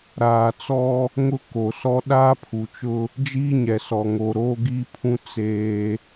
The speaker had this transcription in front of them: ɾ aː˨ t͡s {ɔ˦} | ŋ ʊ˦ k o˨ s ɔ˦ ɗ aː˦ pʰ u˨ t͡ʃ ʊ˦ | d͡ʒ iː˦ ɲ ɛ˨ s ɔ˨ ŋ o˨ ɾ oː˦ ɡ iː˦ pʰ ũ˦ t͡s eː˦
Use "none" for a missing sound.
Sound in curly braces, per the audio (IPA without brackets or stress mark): ɔ˦